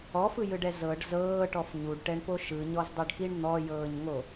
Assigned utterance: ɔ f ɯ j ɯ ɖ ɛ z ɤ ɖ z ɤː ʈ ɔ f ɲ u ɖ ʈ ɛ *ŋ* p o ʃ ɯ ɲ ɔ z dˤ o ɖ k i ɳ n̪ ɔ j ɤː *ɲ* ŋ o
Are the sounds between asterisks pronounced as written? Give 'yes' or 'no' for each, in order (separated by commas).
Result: no, yes